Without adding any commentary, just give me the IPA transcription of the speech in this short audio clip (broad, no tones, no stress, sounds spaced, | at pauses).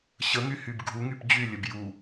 ɕ ə ŋ y h y b ɡʱ u ŋ y p d͡ʑ y lʲ ə b j u